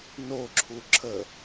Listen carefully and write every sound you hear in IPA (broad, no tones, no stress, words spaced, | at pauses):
noǁʰu ǁʰə